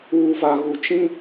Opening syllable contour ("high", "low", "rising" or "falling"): low